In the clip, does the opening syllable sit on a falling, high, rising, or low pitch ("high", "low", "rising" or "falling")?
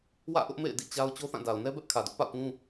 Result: falling